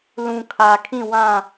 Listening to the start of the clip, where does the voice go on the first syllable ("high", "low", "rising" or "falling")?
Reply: low